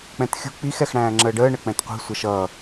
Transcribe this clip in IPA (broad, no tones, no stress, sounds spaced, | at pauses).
k͡p ɛ̃ t xʲ ṳ k͡p i x ɛ x ɽ æ̃ː ŋ͡ǁ əː ɖ əː ɳ ə k͡p ɛ̃ t qʷ i̤ sʷ ʌ ʃ ʌ